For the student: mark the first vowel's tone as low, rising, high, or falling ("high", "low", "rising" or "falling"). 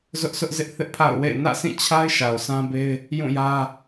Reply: high